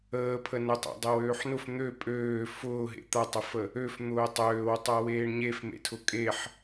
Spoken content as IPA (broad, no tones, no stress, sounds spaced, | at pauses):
əː pʰ ə n ə tˤ a̰ dˤ e w øː ħ n ʊ f n̪ ø pʼ øː f ʊː ɦ ḛ t̪ a tˤ ə f ə | ø f n̪ ʊː tˤ øː w tˤ a w eː ɳ ɲ e f m ḛ tʰ ʊ kʼ e ħ